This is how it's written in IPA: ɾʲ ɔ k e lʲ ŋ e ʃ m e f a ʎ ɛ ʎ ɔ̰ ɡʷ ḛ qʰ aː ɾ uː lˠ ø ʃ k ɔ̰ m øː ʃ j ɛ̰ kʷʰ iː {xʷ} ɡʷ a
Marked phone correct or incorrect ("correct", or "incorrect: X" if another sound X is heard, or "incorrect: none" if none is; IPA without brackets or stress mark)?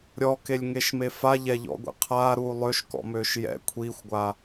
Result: correct